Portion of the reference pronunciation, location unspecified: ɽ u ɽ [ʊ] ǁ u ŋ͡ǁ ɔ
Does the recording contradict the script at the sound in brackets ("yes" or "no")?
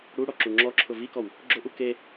yes